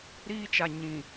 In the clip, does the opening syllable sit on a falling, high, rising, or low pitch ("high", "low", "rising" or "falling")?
high